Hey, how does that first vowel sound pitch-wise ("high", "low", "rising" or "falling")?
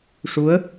rising